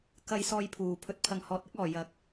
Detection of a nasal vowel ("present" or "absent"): absent